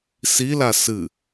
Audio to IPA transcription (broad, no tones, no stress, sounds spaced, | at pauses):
s i l a s ɨ